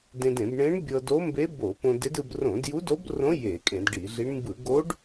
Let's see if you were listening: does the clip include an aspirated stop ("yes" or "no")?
no